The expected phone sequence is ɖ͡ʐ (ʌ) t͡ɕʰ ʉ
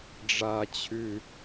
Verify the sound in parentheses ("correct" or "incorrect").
incorrect